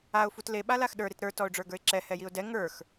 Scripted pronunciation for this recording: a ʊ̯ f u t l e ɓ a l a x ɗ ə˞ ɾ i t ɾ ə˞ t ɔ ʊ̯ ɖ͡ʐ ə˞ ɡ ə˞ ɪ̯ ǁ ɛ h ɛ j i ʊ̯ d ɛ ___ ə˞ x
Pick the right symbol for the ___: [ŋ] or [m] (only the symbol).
ŋ